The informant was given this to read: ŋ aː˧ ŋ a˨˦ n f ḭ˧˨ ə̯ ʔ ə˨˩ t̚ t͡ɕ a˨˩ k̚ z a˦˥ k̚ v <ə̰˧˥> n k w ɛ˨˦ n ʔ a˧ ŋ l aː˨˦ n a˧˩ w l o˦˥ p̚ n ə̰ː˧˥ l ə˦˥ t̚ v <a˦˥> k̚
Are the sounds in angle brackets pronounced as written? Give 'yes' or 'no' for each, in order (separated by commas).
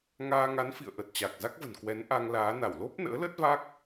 no, yes